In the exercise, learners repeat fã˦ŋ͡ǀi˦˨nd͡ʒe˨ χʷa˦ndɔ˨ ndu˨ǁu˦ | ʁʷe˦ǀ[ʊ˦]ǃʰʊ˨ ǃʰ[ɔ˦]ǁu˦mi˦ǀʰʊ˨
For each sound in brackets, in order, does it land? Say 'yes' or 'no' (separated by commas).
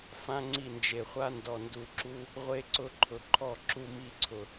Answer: yes, no